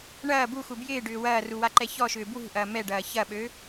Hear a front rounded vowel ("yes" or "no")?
yes